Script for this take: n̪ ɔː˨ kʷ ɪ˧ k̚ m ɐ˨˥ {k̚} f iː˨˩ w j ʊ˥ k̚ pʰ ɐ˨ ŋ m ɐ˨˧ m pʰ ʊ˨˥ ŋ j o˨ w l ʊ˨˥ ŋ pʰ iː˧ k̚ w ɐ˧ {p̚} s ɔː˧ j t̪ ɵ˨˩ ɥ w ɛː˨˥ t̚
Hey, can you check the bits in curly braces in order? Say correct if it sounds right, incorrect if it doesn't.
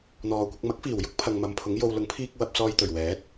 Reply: correct, correct

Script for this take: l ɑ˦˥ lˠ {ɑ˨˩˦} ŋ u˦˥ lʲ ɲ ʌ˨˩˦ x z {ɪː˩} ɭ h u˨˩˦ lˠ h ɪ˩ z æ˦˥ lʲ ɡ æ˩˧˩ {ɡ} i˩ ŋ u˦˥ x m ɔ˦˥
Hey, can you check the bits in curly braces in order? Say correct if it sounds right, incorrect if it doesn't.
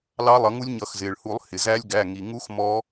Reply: incorrect: ʌ˨˩˦, correct, incorrect: ŋ

